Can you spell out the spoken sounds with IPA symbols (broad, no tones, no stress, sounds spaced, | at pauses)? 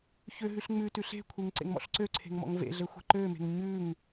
ç ø ɦ ʉ ɬ ŋ͡m ʉ t ʉ ɬ e̤ kʷʰ e ŋ ǀ ḛ ŋ m ɔ̰ ɬ ǀ ø ǀʰ e̤ ŋ m ɔ̰ ŋ v ḛ ɮ ɘ xʷ e̤ ǃ ø m e̤ ŋ ɲ ʉ ŋ